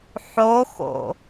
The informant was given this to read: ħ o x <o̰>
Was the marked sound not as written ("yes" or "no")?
no